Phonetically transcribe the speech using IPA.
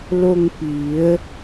l o˧ ŋ p i˩˧ ə̯

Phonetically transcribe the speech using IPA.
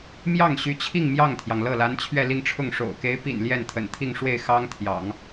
m j ɑ˥˩ ŋ ɕ y˧˥ t͡ɕʰ i˥˧ ŋ m j ɑ˥˩ ŋ t̪ʰ j ɑ˩ ŋ l ɤ˥˩ l a˧˥ n t͡ɕʰ ɥ ɛ˥˧ l i˥˧ ŋ ʈ͡ʂʰ ʊ˥˩ ŋ ʂ o̰˨˩ ʊ̯ k e˧˥ ɪ̯ p ḭ˨˩ n l j ɛ˥˩ n t̪ʰ ə̰˨˩ n t̪ʰ i˥˧ ŋ ʂ w e˥˩ ɪ̯ x ɑ˥ ŋ t̪ʰ j ɑ̰˨˩˦ ŋ

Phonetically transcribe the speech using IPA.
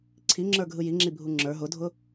ǀʰ i ŋ͡ǁ ə˞ ɡʱ ɯ j i ŋ͡ǁ i bʱ u ŋ͡ǁ ə˞ ɦ ʊ dʱ ʊ

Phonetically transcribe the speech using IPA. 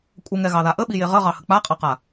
kʷʼ ə ŋ ɛ ɣ ɑ ð a ʔ ə ɓ i j e ʁ ə ʁ ɑ h ə k͡p a qʼ ɑ q a

